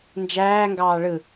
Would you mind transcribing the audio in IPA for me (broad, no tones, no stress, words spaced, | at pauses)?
nd͡ʒæːŋɡɑː ɭɯ